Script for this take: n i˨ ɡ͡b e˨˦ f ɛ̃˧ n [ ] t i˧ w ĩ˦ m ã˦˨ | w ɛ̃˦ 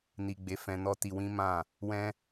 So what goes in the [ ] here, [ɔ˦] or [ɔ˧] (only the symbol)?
ɔ˦